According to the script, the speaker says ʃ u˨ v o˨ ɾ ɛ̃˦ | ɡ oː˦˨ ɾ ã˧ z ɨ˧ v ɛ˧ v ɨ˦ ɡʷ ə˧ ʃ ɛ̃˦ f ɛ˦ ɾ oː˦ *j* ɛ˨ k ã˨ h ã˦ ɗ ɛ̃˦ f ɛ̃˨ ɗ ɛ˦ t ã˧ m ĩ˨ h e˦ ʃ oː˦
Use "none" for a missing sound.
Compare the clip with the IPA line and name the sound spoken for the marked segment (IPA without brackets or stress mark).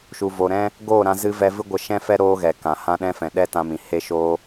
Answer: ɣ